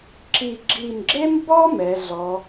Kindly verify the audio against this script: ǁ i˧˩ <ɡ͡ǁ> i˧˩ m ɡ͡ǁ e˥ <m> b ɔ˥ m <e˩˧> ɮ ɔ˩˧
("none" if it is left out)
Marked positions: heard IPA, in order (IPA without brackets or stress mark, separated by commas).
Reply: ɡ͡ǁ, m, ɛ˩˧